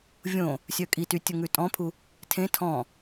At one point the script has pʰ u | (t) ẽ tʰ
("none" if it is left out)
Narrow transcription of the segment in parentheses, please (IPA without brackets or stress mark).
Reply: tʰ